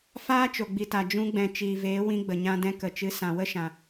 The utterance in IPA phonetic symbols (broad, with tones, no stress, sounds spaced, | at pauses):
f aː˦ t͡ʃ o˨ ɡ͡b i˨ t a˨ d͡ʒ ũ˧ ɡ͡b ɛ̃˨ t͡ʃ iː˨ v eː˨˦ w ĩ˧ ɡ͡b ə˨ ɲ ã˧ d ɛ̃˧ k ə˨ t͡ʃ ɨ˨˦ s ã˨ w ə˦ ʃ ã˨